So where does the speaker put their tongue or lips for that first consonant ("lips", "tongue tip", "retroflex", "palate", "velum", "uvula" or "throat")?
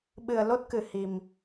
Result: lips